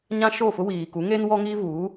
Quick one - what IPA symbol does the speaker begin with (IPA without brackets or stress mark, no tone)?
ɲ